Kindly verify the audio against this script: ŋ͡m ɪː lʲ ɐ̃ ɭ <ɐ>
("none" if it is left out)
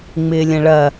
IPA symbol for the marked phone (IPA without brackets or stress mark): ɐ